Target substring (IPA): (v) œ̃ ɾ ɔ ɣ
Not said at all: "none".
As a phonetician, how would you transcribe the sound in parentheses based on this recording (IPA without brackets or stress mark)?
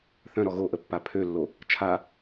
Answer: θ